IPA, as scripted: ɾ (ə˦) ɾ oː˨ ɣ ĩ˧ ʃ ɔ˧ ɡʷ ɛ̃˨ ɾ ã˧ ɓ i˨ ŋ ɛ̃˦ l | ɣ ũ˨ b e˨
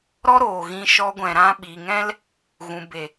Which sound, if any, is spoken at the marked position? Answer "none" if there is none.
ɔ˦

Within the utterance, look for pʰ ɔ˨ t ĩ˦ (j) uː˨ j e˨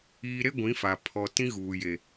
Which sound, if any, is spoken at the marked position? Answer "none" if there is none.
ɣ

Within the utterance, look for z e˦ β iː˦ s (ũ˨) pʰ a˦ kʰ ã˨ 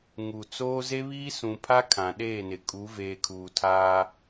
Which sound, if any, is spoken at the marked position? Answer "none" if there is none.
ũ˨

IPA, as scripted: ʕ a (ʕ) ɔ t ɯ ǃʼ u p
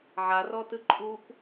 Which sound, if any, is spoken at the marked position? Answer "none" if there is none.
r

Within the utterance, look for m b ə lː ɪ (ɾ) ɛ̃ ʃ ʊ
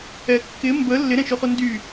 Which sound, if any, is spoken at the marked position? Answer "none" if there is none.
ɾ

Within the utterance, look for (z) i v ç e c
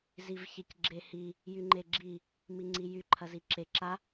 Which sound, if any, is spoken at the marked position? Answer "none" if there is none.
z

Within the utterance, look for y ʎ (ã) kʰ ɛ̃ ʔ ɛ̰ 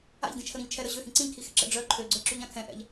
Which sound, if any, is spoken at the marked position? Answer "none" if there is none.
ã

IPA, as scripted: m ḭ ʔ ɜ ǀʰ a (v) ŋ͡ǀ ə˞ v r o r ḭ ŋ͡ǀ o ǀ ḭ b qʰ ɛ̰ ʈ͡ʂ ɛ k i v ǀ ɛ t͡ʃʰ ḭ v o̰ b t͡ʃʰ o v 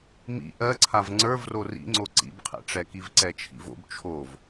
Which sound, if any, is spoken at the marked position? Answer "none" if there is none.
v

